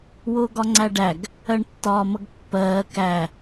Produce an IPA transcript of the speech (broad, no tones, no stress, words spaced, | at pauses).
wʊːɡɒŋ͡ǀæɖæɡ | ɜɳtːɒːmʌɡpːɜː kæ